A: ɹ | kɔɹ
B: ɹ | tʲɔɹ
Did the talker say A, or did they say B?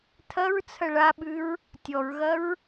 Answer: B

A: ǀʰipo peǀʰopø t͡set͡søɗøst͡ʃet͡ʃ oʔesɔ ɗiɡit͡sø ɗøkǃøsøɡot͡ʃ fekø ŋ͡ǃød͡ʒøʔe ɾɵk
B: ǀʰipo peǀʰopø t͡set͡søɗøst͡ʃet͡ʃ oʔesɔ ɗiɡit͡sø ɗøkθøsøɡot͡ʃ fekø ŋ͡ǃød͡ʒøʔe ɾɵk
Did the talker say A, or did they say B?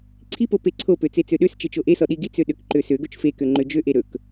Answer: A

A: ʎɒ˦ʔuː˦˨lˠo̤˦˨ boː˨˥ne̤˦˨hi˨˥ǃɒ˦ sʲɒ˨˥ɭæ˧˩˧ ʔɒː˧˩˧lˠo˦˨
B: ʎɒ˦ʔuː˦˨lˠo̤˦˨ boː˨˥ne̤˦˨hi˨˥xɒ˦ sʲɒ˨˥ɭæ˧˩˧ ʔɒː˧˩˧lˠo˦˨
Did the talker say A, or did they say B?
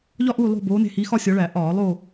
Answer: B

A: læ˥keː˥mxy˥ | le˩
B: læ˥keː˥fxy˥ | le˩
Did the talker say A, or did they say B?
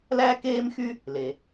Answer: A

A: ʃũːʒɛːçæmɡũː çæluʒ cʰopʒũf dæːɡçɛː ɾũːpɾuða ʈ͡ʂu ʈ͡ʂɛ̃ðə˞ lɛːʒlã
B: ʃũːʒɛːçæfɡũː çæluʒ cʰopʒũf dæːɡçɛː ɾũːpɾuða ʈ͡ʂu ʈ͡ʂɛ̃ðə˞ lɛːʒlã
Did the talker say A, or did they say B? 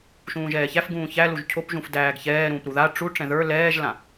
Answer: B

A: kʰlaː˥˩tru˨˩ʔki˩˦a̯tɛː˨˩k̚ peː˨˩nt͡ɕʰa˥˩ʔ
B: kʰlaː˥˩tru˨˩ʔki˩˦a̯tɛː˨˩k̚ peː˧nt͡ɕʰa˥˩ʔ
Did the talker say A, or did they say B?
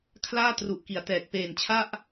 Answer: A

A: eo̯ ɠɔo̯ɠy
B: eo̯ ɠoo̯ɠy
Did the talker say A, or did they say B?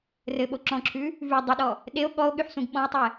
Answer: A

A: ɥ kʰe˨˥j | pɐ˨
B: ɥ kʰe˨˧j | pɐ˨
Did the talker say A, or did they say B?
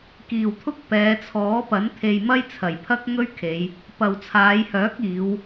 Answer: B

